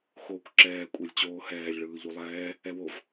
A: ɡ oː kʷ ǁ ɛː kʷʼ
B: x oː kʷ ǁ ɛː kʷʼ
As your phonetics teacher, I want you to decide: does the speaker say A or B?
B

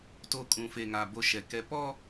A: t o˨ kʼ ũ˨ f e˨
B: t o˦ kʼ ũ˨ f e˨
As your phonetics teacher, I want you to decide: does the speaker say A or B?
B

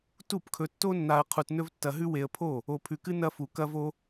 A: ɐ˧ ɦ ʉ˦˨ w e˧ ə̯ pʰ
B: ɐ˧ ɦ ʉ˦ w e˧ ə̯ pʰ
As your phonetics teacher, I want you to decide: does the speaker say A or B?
B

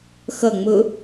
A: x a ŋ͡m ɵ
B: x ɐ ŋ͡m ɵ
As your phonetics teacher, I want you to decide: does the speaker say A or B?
B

